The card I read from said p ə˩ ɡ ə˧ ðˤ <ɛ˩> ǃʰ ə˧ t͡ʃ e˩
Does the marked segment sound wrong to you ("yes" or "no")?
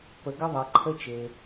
no